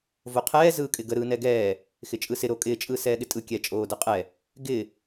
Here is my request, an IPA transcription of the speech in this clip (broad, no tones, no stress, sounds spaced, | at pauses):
v o qʰ ɛː z ɯː kʼ ɪ ɡ ə ɾ ɯː n ɛ ɡ ɛː | x ɪ t͡ʃʼ ɯ s ɪ ɾ o kʼ ɪ t͡ʃʼ ɯː s ɛː ɠ ɪ tʼ ɯ kʲ ɛ t͡ʃʼ oː d ə qʼ ɛ | ɡ ɪ